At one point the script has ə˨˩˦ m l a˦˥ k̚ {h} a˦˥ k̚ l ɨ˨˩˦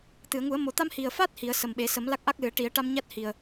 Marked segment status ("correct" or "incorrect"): incorrect